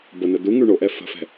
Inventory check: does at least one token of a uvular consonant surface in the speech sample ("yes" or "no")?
no